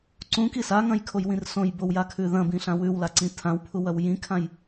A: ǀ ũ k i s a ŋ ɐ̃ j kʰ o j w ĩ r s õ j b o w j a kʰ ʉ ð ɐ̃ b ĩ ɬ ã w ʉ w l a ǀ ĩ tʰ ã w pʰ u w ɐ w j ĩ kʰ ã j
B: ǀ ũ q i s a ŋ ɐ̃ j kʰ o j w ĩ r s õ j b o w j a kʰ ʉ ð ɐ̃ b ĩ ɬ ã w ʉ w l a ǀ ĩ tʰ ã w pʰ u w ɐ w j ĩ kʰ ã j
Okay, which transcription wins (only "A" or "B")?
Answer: A